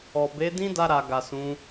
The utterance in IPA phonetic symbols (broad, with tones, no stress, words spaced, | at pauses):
ɔ˨ be˨˦dĩ˦da˧ɾa˨ ɡa˨sũ˨˦